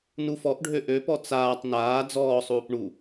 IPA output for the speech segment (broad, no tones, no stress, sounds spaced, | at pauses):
n u f ɔ ʔ ɖʱ ø ʔ ø p ɔ t͡s aː tˤ n aː d͡z ɔː sˤ uː p ɳ u